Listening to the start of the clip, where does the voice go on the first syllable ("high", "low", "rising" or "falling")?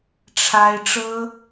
high